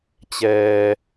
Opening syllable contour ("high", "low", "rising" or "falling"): low